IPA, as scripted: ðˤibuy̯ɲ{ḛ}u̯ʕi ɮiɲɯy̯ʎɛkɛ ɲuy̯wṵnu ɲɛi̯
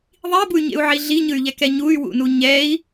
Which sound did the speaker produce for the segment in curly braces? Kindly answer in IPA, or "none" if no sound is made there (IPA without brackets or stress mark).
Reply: ḛ